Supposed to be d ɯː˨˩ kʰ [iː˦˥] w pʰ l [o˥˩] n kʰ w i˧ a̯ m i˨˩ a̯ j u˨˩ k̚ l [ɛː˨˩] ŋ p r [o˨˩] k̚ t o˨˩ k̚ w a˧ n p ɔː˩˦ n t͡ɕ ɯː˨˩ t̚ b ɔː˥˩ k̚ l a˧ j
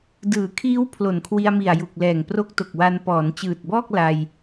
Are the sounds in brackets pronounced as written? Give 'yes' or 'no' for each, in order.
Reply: yes, no, yes, no

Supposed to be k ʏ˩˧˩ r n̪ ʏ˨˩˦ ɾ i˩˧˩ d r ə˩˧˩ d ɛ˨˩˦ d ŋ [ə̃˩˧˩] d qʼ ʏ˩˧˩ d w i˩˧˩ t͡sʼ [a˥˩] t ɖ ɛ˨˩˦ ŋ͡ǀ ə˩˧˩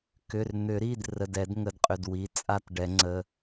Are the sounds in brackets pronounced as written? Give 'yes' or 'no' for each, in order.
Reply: no, yes

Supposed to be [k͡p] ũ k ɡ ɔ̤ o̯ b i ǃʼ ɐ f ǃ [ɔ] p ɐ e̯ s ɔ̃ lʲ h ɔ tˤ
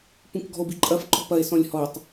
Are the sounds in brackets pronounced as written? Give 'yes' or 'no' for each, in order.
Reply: no, no

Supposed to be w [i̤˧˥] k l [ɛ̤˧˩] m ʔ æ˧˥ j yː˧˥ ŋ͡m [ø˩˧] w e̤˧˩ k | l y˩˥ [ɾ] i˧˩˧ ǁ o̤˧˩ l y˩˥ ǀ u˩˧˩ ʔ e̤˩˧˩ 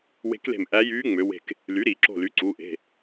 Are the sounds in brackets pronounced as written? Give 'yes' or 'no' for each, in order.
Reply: no, no, yes, yes

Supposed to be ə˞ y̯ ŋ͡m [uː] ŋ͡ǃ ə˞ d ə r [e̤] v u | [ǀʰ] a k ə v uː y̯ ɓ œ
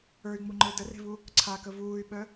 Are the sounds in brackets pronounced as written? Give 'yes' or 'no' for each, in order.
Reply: no, yes, yes

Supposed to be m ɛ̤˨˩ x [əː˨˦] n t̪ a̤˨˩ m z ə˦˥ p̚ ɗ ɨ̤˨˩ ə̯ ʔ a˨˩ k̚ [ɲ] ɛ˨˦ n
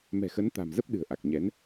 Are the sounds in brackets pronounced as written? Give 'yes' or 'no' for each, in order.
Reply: no, yes

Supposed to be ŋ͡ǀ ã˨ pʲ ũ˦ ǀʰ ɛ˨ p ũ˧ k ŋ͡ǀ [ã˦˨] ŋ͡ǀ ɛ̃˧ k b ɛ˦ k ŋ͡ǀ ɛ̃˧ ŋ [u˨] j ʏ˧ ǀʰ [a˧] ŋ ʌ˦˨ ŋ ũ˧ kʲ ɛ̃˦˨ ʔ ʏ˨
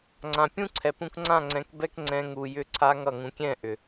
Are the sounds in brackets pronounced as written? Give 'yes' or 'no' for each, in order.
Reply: yes, yes, yes

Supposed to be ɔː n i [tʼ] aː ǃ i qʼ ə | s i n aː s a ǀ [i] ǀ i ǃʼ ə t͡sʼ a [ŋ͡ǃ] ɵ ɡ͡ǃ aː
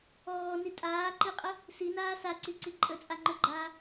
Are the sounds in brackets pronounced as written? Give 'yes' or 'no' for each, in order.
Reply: yes, yes, yes

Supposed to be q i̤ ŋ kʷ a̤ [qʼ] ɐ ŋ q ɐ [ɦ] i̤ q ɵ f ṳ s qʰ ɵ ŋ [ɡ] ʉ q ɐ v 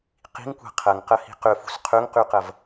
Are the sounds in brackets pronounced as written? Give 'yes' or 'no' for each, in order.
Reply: no, no, no

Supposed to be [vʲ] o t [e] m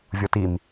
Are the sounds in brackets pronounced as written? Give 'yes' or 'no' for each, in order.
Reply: yes, no

